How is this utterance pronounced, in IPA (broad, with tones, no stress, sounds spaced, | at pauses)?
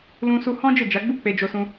l ũ˧ s u˧ h ɔ̃˦ d͡ʒ e˦˨ d͡ʒ a˨˦ ɡ͡b u˦ k͡p e˧ d͡ʒ o˧ s ũ˧